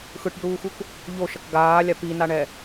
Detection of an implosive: absent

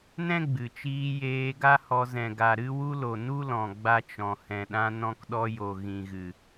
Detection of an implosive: present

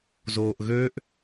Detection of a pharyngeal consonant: absent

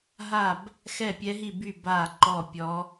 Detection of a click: present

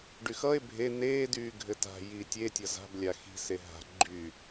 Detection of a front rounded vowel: present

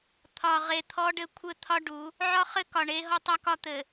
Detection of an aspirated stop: present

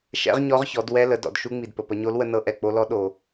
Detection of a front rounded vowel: absent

